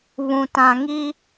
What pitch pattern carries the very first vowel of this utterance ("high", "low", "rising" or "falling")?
low